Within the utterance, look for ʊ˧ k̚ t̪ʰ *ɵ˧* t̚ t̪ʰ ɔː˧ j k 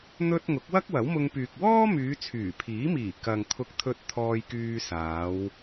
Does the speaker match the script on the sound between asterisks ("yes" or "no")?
yes